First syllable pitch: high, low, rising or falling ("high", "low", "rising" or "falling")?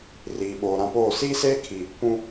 low